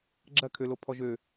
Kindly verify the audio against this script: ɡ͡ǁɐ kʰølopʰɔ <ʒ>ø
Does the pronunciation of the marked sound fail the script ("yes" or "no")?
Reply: no